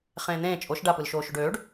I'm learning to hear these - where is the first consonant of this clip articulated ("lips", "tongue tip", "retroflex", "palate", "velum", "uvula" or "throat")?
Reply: uvula